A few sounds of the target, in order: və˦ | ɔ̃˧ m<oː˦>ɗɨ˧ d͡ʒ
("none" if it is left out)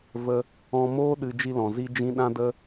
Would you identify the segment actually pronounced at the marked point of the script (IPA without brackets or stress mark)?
oː˦